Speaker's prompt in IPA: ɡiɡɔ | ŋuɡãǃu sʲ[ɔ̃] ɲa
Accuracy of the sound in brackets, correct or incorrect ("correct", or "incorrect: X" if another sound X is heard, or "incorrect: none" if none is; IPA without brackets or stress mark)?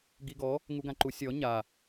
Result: incorrect: ɔ